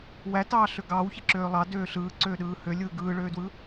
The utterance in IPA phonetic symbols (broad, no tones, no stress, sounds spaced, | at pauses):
w æ t ɑː ɬ ø ɡ ɑː w ç e ǁ øː lˠ ɑ d øː ɬ ɯː ǀ øː ɗ ɯː h ø lʲ ɯː ɡ ɯː ɭ øː d w ɯ